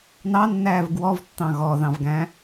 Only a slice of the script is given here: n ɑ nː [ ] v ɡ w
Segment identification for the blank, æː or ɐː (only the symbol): æː